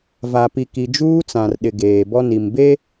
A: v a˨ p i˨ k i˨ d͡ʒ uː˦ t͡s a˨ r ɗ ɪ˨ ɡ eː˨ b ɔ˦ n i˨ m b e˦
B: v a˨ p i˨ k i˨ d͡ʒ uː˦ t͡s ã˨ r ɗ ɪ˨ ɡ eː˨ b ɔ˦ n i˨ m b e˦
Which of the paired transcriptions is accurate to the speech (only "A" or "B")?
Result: B